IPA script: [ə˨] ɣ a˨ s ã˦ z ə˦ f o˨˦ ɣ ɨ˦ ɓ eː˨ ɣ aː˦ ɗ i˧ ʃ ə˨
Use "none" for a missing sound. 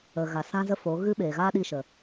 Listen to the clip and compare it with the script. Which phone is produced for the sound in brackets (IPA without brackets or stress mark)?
ə˨